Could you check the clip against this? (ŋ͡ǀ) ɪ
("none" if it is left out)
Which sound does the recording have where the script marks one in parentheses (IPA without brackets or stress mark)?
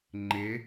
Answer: ŋ͡ǃ